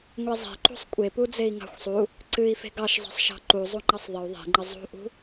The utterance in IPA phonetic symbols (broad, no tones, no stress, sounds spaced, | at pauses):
ŋʷ e zˤ e̤ ǃ ṳ sˤ kʷʼ e p u d͡z e i̯ ŋ ɑ̤ xʷ sˤ u | ǀ ɨ i̯ f e̤ ɡ ɑ ʃ zˤ e̤ sˤ ʃ ɑ̤ ǃ u zˤ u ŋ͡ǃ ɑ sˤ ðˤ ə u̯ ðˤ e̤ ŋ͡ǃ ə zˤ ṳ ʔ ṳ